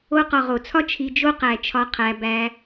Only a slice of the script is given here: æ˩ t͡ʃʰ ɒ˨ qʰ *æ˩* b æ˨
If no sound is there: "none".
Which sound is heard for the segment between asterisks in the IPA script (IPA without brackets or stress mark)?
æ˩